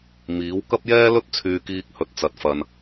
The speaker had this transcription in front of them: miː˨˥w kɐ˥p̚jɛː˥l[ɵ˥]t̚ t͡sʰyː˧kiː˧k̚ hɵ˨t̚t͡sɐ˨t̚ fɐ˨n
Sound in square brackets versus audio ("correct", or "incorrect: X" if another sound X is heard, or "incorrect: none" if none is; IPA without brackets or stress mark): correct